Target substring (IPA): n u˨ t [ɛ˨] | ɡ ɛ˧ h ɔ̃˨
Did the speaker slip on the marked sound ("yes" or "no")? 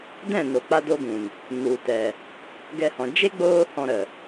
no